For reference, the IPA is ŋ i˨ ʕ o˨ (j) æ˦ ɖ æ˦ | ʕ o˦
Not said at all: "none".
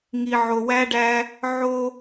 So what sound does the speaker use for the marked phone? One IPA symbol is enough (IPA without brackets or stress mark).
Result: w